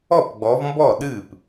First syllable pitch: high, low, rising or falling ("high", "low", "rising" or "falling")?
falling